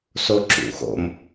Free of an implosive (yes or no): yes